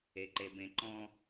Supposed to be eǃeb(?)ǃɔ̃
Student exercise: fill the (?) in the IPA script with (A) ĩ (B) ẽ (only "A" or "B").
B